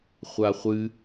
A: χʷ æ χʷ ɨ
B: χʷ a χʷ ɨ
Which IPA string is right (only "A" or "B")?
B